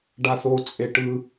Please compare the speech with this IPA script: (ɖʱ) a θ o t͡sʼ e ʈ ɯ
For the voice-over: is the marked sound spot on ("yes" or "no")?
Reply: no